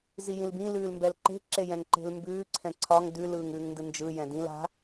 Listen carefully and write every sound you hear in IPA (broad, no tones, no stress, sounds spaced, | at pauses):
z i j ĩ l b ĩ l ʉː l m b ɛ l ǃ e̤ ǁ e j ɛ̃ ŋ ǃ e̤ l m b ʉː ǀʰ ɛ̃ ǀʰ ɒ ŋ d ʉ l ɯː ŋ ʉː ŋ n d ɯ n d͡ʒ ɯ j ɛ̃ d ĩ l a̤